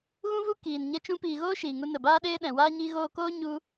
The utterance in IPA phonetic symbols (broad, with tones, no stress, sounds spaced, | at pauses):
ɣ ũ˦ v u˦ k iː˨ n ɲ ɛ˧ t͡ʃ ũ˧ p iː˨ ɣ oː˦ ʃ iː˨ ŋ u˧ n ə˨ b aː˦ ɗ eː˦ ɗ ɛ̃˨ w aː˦ ɲ i˦ ɣ oː˧ k oː˦ ɲ u˧